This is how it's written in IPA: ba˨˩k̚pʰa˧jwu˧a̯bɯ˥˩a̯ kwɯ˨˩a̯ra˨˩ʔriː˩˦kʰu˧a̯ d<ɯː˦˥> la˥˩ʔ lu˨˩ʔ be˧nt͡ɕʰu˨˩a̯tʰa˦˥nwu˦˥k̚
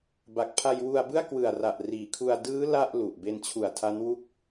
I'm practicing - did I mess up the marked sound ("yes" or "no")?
no